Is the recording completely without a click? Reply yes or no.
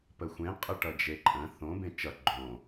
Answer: no